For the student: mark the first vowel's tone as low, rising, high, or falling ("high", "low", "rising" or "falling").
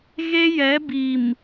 high